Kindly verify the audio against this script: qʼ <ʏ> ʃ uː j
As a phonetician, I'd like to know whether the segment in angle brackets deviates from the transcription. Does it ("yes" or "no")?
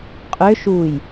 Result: no